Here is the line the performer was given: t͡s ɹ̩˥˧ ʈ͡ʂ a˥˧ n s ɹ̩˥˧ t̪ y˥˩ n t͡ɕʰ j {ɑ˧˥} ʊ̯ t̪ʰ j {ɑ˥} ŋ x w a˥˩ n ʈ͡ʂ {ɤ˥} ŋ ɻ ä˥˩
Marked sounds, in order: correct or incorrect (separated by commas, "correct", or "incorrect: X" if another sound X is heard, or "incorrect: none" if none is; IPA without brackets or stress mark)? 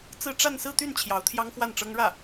correct, correct, correct